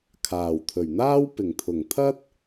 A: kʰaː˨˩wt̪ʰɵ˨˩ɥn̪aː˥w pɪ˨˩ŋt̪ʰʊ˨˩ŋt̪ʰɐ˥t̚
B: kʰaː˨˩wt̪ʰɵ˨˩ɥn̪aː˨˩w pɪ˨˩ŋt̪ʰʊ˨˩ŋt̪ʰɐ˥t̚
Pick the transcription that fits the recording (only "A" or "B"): A